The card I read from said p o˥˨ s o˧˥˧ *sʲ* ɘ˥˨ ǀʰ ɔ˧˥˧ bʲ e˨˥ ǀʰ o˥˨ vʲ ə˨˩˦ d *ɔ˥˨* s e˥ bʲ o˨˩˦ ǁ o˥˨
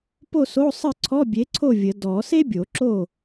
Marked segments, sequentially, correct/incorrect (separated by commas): incorrect, incorrect